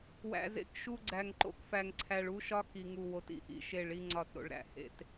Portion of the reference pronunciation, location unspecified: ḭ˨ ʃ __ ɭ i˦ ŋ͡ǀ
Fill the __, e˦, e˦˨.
e˦˨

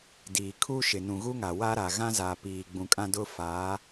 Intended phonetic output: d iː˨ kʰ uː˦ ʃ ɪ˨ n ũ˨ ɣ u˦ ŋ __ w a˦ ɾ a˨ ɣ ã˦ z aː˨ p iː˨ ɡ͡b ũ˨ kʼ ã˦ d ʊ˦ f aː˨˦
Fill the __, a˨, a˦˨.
a˨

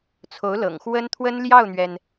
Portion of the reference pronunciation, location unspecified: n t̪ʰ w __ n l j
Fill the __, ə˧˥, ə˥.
ə˥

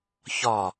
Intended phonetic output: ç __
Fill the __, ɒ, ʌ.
ɒ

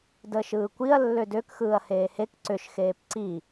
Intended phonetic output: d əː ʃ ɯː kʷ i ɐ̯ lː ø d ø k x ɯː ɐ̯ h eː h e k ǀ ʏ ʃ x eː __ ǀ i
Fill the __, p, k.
p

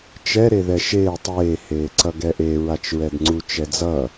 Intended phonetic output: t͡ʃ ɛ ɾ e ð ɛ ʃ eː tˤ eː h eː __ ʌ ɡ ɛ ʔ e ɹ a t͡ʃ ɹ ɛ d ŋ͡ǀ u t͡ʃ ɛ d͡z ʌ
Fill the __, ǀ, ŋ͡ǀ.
ǀ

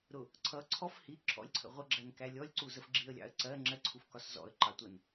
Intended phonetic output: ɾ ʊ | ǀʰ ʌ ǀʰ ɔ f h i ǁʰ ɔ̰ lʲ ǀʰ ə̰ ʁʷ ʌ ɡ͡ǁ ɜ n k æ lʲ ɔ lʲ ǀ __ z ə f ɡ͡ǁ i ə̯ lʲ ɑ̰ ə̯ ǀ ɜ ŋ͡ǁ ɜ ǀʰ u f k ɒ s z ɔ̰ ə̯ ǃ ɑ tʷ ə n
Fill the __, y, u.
u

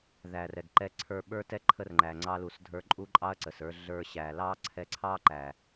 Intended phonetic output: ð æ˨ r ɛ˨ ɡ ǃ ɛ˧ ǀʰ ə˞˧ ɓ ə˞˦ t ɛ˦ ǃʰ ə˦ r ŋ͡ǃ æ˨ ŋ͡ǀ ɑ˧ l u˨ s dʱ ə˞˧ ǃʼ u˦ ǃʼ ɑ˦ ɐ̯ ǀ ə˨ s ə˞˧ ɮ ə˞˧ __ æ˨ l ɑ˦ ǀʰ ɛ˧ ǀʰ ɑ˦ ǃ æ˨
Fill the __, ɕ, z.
ɕ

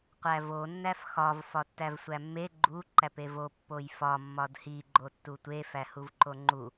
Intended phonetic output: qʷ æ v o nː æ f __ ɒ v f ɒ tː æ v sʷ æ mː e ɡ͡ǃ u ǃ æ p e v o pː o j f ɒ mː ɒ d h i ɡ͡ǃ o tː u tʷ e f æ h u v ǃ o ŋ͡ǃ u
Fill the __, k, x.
x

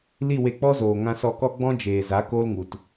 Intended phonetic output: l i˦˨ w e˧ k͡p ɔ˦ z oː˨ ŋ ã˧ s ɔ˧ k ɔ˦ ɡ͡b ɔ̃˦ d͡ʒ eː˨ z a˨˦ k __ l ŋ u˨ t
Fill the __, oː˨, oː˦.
oː˦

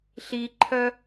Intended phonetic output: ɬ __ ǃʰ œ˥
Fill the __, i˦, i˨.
i˦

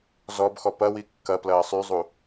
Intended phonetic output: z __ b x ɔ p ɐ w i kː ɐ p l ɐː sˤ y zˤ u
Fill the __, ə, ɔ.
ɔ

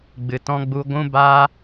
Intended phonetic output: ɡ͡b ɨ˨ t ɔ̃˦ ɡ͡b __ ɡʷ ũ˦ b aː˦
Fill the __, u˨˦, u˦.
u˦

